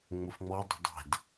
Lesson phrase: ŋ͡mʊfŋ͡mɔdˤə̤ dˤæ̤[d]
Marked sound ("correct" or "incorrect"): correct